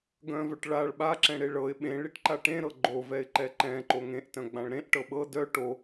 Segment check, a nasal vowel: present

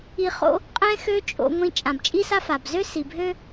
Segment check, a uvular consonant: present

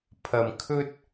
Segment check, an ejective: absent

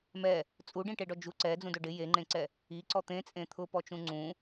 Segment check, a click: present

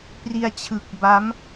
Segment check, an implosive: absent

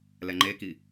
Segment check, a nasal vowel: absent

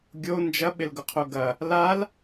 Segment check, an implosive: present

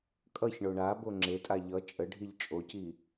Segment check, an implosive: absent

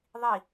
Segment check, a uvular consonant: absent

